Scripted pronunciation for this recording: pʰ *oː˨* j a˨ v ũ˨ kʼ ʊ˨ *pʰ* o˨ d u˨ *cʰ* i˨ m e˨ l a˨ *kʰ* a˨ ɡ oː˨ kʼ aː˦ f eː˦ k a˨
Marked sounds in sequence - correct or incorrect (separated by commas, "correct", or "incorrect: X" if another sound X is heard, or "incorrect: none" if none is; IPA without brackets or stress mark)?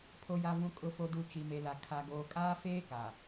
incorrect: o˨, incorrect: f, incorrect: t͡ʃ, correct